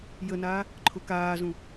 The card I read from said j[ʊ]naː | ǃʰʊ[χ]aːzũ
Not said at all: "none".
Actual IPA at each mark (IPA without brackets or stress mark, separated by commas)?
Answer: ə, k